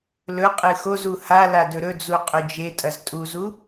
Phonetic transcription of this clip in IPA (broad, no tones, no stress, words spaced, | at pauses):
lɵ qʼɨxozu hala dɵɾɵd͡zu qʼɵd͡ʒetʼɐz tʼuzu